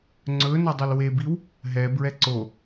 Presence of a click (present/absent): present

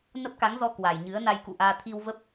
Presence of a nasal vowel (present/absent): absent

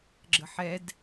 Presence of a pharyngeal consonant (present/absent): present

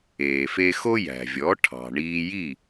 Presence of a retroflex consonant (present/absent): present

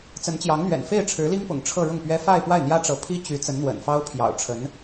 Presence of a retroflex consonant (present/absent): present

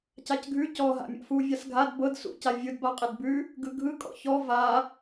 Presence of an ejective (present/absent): present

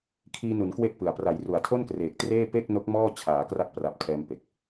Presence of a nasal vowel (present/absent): absent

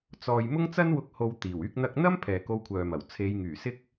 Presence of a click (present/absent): absent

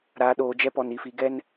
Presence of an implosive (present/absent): present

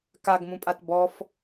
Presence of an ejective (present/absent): present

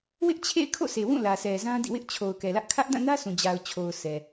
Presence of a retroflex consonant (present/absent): absent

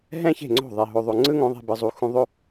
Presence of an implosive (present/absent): absent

